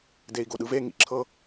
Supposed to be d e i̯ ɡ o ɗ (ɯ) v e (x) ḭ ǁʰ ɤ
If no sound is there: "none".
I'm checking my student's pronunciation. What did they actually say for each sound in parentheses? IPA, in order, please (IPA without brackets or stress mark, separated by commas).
ɯ, ŋ